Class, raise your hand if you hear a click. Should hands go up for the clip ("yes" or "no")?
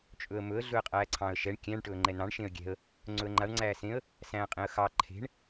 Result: yes